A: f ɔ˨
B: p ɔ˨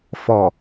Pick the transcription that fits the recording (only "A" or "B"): A